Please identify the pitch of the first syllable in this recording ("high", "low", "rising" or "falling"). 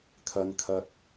low